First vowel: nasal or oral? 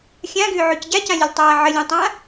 nasal